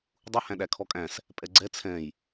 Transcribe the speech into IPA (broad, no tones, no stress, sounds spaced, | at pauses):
dˤ u h æ̃ ɗ æ kʰ ɔ kʼ æ̃ s | pʼ ɛ ɡ͡ǀ ɛ t͡sʰ ɛ̃ j